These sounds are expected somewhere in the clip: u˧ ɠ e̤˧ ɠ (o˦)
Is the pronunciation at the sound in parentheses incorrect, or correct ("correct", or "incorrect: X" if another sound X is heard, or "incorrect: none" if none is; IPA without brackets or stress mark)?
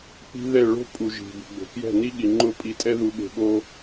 correct